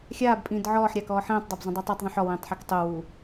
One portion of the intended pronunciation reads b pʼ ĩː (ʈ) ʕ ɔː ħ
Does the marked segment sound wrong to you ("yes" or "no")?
yes